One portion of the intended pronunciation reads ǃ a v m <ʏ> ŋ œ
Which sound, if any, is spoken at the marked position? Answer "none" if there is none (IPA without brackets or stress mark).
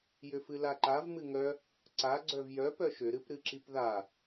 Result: ɨ